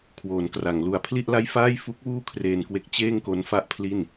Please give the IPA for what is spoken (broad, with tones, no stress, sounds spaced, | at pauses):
kʰ w oː˩˦ n k r a˩˦ ŋ l u˨˩ a̯ pʰ l i˥˩ ʔ l a˥˩ j f aː˥˩ j f u˦˥ k̚ w uː˥˩ kʰ r eː˧ n k w e˦˥ k̚ t͡ɕ eː˥˩ ŋ k o˦˥ n f a˥˩ ʔ pʰ l i˥˩ n